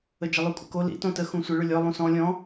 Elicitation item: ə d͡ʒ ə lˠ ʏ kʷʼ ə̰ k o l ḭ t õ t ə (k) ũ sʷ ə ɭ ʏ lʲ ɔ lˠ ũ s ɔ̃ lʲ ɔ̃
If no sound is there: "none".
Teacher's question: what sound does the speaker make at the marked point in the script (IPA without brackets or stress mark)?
x